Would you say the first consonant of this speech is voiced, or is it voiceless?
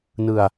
voiced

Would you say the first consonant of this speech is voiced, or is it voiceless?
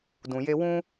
voiced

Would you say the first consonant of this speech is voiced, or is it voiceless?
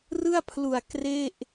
voiced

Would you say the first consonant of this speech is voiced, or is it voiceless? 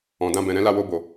voiced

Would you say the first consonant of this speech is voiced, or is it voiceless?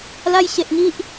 voiced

